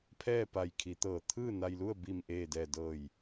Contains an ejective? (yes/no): no